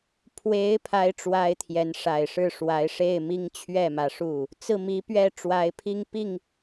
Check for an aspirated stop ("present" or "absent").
present